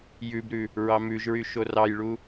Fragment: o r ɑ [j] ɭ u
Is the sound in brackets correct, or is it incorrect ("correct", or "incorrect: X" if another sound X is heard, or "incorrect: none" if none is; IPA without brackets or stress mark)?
correct